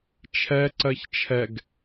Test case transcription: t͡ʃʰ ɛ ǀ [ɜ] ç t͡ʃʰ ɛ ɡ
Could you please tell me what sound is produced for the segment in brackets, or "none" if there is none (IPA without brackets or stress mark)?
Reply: ɜ